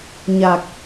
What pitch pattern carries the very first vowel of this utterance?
low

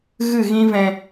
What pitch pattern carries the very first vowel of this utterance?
falling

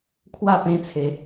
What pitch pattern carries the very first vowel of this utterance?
falling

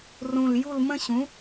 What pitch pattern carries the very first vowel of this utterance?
low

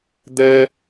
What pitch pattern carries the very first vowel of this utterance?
high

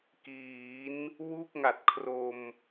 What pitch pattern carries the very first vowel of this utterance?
rising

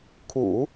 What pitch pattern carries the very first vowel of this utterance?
low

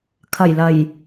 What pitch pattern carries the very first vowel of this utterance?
low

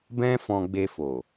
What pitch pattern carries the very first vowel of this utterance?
high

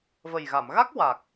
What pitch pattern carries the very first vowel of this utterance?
low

